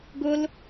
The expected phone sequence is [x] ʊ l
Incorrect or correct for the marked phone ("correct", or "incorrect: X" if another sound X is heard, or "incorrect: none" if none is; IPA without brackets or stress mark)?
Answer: incorrect: ɡ